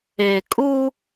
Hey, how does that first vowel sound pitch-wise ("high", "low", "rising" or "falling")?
low